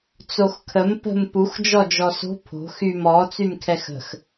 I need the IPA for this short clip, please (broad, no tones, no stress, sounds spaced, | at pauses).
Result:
t͡s o x kʰ ə m p ə̤ m p u x d͡ʒ ɔ d͡ʒ ɔ s o̤ pʰ o̤ x y m ɔ t͡s y m kʰ ɛ x ə̤ x